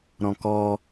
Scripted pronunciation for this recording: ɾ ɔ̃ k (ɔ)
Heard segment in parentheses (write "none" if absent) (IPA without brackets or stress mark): ɔ